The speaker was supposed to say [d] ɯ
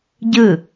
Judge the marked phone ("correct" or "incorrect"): incorrect